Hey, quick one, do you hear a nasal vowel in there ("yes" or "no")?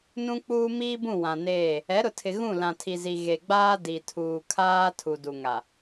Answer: yes